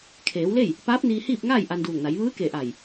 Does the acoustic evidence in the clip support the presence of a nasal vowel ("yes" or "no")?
no